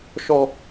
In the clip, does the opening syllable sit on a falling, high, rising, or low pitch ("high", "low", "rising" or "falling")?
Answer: high